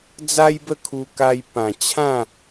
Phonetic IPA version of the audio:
d͡za˦jbə˥˧kʰu˧ ka˧j pã˨˩t͡ɕʰã˥˧

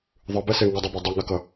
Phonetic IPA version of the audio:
ðˤɯbɛse ŋʌdˤibo dˤɛŋakʌ

